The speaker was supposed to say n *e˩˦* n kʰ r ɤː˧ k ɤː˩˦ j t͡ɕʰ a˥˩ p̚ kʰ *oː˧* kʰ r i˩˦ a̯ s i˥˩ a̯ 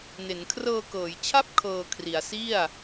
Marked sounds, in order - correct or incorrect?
correct, incorrect

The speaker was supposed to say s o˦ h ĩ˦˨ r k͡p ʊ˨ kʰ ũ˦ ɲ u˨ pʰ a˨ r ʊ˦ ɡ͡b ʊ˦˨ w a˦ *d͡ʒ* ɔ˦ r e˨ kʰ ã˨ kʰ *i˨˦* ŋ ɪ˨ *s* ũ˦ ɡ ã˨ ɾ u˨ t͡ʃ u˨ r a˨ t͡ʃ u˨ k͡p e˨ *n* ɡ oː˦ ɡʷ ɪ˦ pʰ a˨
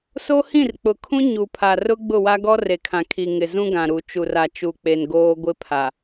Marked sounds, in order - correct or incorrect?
incorrect, incorrect, incorrect, correct

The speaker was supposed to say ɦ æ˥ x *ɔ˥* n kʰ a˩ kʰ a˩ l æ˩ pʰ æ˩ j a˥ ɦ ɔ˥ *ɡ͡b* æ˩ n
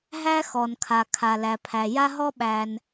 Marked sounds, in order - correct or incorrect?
incorrect, incorrect

